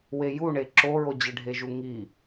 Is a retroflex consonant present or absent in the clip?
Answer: present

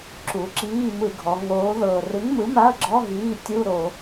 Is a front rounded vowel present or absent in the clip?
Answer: absent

